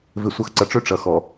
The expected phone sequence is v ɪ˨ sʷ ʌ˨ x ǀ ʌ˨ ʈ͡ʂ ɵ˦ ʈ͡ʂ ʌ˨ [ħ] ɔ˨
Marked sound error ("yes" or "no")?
yes